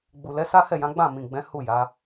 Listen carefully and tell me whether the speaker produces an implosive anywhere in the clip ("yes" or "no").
no